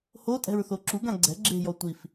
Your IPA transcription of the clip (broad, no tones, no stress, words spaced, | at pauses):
hotʼɛ̤ɹθo ǁuɡã ɡ͡ǀɛ̤ ɡ͡ǁe̤jɔ tʷif